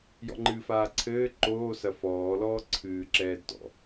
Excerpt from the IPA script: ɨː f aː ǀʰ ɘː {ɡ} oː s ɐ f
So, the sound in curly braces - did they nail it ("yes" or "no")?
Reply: no